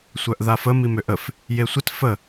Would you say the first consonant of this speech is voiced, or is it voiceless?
voiceless